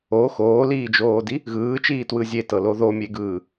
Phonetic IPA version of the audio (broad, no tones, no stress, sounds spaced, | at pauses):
o x oː l iː d͡ʒ oː d i | ɣ ɯː t͡ʃ iː t w ɯ zʲ e t ɤ l o ð o mʲ e ɡ ɯː